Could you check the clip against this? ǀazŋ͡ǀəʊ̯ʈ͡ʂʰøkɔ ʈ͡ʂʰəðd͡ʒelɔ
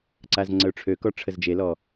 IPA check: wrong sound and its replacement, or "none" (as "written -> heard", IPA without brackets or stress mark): ð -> z